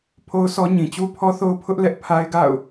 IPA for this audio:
pʰo˦ʊ̯sɔ˦ɲĩ˨ t͡ɕu˦ pʰɔ˦θo˦ʊ̯ pʰʊ˦ʔlɛ˦ʔ pʰa˦ɪ̯ɡa̰˦˨ʊ̯

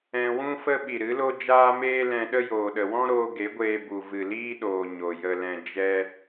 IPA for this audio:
ɛ̃˧ wũ˦fə˦ ɓi˨ɾɨ˨˦lo˦ d͡ʒaː˦meː˦lɛ̃˧ɗə˦ joː˨ɗə˨ wɔ̃˦ɾoː˧ ɡe˨˦ɡʷeː˧bu˨ vɨ˨liː˦ɗoː˨ ɲo˨jə˧lɛ̃˧ d͡ʒɛ˦

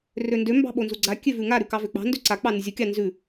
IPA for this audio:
røndø mbɑ̤ɓonzuɡ͡ǀa kʲøvʉŋa ɾʉkɑvøk͡pɑ̤ ndøǀa k͡pɑnʉzʲu kʲɑnzʉ

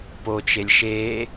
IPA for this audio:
pot͡ʃelʲ ʃe

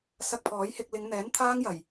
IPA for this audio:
sɐ˧k̚pʰɔː˨˥jhɪ˧k̚ lɪ˨˧ŋ n̪ɛː˨˥nt̪ʰaː˥ŋjɐ˨˩j

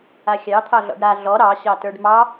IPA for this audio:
axʲɑ t̪ʰɑɮɔ̰ɖɾa ɮɔ ɾɑ ɕɑtə˞ɖmɑ

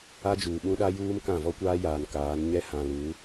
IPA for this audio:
a˦d͡ʒuː˨ ɓũ˦ɗa˦juː˦m kã˦˨ vɔ˦kʷaː˦jaː˨n kaː˨˦n ɲɛ˦hã˨lu˨˦

